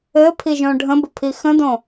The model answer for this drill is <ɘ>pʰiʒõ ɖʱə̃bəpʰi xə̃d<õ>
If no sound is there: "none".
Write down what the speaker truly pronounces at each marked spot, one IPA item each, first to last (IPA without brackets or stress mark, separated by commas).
ɘ, õ